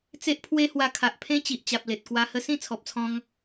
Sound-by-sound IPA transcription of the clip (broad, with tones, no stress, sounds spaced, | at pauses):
t͡s e˦ ʔ pʰ w e˦ h w a˧ kʰ a˨ ʔ pʰ ẽ˦ t͡ɕ i˨ ʔ t͡ɕ a˨ p̚ l e˨ t̚ k w a˧ h ə˦ s ĩ˥˧ t͡sʰ ɔ˨ p̚ t͡sʰ ɔ̃˧ ŋ